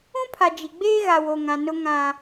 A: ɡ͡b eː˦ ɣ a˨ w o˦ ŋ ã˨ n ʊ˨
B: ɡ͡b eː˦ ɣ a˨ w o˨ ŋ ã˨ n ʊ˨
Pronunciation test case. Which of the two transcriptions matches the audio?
B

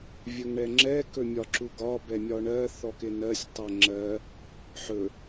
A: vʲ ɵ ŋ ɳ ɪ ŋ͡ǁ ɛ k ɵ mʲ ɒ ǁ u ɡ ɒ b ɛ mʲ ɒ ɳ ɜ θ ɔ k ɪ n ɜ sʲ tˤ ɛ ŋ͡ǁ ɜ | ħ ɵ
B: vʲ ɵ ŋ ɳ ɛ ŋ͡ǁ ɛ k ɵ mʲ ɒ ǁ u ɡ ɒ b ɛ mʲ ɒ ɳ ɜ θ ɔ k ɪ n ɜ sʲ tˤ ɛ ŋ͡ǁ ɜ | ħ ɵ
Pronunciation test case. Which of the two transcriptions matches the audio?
B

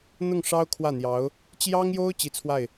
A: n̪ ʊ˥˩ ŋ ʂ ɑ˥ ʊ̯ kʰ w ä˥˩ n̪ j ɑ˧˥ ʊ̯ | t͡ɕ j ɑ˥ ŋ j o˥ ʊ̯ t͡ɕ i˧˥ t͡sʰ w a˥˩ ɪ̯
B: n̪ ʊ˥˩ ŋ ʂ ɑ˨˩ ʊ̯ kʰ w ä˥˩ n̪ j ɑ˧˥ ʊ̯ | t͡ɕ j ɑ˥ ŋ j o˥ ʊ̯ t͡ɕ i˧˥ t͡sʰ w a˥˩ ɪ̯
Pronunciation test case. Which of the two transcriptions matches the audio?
A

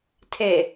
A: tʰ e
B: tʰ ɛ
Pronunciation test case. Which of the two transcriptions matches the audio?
A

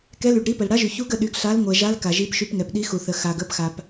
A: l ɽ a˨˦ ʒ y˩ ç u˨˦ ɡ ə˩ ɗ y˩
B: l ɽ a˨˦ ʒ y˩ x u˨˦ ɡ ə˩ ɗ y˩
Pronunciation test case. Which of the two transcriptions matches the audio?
A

